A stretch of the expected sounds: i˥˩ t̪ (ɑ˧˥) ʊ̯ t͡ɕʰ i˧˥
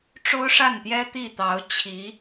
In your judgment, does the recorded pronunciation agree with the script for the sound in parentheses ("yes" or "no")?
yes